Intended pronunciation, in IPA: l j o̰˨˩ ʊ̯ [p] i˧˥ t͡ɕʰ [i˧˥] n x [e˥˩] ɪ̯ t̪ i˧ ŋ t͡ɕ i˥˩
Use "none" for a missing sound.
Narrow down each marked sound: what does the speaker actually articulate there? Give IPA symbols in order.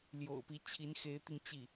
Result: p, i˧˥, e˧˥

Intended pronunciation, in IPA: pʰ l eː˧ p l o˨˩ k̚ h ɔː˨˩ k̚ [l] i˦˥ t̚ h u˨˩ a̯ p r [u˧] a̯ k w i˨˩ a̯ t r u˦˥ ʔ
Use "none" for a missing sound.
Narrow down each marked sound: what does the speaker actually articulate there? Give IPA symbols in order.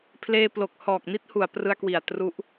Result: n, ɯ˧

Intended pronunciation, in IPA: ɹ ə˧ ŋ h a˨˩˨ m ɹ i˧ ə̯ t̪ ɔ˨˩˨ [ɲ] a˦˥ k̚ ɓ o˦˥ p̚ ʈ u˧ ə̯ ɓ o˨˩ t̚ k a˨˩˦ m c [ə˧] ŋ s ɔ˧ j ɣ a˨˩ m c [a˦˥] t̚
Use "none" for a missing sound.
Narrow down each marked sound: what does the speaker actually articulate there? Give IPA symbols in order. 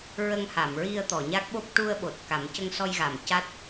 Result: ɲ, ə˧, a˦˥

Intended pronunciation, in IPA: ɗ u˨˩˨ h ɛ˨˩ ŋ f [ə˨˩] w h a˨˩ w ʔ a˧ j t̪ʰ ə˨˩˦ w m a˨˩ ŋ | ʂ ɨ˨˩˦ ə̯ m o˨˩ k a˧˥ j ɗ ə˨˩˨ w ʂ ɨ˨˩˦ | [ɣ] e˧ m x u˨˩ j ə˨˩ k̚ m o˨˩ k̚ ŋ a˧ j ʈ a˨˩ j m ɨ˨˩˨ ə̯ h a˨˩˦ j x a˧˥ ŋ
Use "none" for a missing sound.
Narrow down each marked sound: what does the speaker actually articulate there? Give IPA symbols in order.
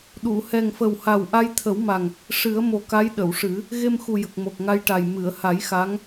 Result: ə˨˩, ɣ

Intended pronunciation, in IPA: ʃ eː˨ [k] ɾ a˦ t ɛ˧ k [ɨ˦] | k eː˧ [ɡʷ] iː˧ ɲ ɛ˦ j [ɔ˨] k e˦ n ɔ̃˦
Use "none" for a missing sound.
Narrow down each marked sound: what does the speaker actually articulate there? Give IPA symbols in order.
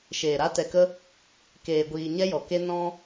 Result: none, ə˦, ɡʷ, ɔ˨

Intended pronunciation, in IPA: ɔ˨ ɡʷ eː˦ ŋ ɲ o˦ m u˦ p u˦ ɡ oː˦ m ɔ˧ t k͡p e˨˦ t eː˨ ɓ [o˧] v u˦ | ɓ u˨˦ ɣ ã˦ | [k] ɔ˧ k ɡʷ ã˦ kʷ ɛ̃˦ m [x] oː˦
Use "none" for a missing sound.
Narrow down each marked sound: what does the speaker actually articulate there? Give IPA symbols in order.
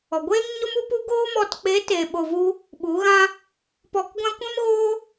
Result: o˧, p, ɣ

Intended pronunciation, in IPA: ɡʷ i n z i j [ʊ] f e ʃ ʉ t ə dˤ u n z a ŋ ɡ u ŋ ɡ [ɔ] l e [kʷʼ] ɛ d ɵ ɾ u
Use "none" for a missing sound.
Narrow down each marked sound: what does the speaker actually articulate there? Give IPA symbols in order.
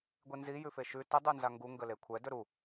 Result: ʉ, ə, kʷʰ

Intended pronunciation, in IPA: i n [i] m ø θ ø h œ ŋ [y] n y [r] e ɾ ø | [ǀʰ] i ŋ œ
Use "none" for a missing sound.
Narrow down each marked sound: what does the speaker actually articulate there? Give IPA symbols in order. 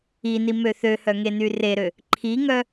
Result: i, e, r, ǃʰ

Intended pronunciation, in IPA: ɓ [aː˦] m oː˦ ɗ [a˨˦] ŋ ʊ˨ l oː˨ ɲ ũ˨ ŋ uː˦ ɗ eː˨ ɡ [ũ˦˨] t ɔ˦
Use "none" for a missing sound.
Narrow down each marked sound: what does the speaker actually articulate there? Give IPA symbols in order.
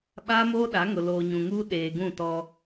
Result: aː˦, a˨˦, ũ˦˨

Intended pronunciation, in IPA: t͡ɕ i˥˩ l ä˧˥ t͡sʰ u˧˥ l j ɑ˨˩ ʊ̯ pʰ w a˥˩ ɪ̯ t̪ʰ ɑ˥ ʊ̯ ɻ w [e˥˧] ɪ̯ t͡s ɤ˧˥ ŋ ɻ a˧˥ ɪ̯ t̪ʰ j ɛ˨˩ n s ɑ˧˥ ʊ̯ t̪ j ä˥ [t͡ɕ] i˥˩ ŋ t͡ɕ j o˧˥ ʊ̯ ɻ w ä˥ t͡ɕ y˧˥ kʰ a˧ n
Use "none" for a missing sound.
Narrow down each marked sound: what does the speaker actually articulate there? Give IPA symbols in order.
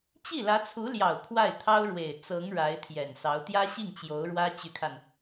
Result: e˨˩, ɕ

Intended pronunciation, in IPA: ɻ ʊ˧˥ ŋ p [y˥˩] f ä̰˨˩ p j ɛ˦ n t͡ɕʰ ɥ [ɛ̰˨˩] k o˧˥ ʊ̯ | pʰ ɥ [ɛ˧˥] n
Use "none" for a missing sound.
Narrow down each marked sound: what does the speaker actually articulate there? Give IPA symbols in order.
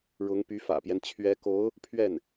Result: y˧˥, ɛ˧˥, ɛ˥˩

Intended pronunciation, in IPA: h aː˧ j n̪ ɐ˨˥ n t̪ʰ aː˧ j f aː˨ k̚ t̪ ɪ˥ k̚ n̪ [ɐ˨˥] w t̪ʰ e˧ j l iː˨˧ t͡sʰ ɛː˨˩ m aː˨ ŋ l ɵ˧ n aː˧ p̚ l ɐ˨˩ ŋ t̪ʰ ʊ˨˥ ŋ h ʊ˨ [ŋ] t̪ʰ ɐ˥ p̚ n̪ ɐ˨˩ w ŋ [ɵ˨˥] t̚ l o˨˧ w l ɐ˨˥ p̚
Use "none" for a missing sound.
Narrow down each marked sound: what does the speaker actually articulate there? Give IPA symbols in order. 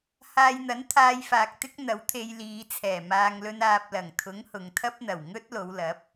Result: ɐ˨˥, ŋ, ɵ˥

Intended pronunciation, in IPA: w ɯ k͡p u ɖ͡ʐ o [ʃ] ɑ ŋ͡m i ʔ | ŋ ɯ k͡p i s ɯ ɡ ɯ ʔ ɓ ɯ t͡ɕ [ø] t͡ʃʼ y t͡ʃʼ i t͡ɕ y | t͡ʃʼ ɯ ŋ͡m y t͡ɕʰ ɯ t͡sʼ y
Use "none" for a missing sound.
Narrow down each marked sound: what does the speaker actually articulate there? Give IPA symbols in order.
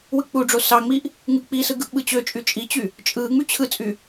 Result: s, ø

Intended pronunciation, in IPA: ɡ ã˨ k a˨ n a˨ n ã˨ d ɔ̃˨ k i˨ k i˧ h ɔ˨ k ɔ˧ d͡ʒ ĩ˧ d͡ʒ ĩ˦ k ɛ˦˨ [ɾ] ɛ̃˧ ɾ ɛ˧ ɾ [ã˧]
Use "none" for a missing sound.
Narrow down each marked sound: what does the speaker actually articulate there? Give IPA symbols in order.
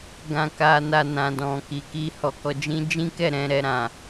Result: ɾ, ã˨

